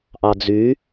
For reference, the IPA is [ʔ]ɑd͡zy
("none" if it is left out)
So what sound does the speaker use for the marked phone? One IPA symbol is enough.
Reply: ʔ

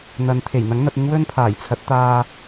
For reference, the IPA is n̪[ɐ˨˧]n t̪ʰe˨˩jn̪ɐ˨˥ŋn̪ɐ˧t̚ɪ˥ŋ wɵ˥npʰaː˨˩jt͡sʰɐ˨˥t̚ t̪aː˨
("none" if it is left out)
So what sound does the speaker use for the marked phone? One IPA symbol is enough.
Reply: ɐ˨˧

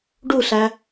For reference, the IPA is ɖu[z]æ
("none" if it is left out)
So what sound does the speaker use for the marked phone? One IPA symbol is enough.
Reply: ɬ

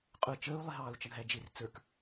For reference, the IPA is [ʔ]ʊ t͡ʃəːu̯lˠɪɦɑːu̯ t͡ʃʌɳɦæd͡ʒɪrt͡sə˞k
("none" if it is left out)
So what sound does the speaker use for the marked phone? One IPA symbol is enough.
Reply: qʼ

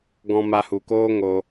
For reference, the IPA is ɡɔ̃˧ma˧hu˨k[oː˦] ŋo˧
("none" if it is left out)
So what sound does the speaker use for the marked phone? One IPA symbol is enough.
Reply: oː˦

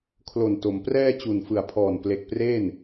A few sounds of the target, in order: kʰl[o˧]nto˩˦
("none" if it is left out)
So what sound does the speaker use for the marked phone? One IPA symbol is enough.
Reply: o˨˩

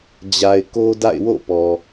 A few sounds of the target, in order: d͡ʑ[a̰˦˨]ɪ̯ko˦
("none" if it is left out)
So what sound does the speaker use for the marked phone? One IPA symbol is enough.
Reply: a˨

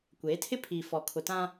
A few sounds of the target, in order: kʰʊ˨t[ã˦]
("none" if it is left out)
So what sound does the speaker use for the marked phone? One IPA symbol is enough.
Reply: ã˦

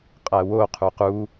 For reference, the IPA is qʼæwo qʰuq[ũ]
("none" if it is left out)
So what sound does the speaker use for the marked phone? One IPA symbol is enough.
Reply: u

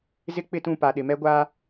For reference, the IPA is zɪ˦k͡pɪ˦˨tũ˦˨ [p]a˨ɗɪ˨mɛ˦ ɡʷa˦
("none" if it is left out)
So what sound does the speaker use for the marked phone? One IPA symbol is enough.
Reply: p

